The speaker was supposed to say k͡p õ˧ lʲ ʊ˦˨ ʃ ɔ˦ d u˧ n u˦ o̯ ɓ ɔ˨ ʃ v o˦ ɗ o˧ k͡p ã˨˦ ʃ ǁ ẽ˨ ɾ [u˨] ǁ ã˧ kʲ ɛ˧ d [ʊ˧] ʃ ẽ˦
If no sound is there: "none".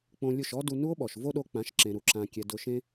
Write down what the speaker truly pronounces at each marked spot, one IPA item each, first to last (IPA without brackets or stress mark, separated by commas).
u˨, ʊ˧